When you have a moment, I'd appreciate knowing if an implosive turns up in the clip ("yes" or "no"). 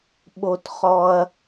yes